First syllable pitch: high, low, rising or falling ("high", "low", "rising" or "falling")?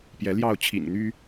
rising